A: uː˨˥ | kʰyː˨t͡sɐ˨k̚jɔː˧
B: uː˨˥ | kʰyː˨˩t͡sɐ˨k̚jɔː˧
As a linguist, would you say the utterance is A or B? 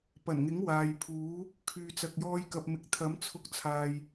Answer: A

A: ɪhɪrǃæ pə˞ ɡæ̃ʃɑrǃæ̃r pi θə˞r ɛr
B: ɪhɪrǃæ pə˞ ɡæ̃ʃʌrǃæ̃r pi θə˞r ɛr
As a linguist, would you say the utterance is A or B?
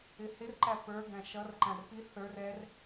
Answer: B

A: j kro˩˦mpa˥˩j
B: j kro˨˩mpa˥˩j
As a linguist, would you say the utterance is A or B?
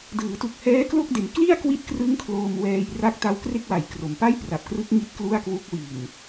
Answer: A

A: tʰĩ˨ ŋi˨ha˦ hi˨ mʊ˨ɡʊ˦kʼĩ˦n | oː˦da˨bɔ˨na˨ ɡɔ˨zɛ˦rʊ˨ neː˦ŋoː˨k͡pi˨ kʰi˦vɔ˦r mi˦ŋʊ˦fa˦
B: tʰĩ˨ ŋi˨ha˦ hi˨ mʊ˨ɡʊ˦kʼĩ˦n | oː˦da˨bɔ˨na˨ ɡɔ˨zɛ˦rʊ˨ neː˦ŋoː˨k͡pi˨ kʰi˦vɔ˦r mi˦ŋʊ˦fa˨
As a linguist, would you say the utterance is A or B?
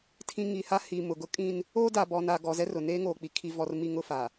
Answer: B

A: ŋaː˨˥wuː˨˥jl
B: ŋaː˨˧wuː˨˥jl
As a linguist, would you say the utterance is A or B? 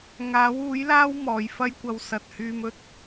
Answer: A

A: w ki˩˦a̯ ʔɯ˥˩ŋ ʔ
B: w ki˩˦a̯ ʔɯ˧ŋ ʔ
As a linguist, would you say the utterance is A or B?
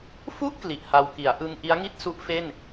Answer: B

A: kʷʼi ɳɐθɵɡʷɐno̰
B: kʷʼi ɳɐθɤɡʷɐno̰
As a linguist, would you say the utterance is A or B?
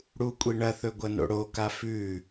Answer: A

